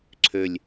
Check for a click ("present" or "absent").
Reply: present